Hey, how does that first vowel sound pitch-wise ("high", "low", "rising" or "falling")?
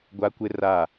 high